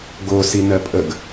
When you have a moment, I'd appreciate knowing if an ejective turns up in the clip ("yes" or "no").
yes